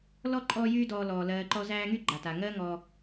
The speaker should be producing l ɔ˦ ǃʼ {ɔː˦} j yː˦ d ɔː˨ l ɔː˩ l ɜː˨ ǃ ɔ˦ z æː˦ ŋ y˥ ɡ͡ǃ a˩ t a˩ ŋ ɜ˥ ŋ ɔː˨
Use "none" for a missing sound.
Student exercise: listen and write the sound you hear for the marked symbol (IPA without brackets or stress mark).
ɔː˦